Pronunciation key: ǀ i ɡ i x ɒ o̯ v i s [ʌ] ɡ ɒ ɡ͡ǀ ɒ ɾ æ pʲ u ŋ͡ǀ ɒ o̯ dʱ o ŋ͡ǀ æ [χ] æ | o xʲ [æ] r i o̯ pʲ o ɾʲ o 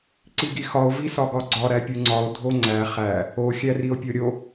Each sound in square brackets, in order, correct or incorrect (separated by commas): incorrect, correct, correct